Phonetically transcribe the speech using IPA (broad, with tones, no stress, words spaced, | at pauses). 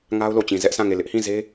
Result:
ŋa˦ʊ̯lo˨t͡ɕĩ˨ zɛ˦ʔsã˦˨ ŋe˦˨ lɪ˦ʔhĩ˦˨ze˦